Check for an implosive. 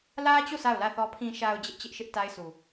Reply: absent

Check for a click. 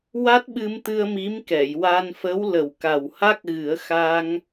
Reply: absent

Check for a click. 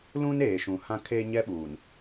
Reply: absent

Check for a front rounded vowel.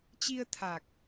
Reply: absent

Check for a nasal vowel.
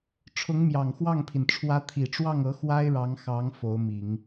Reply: absent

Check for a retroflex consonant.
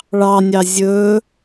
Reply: present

